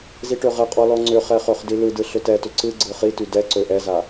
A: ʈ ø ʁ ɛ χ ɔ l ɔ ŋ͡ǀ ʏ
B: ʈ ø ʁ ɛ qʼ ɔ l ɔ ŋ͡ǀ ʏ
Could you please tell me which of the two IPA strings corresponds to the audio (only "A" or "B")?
B